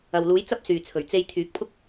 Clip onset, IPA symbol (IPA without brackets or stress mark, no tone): ɐ